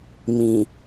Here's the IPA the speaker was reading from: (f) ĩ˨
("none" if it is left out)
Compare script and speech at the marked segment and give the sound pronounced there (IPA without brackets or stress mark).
m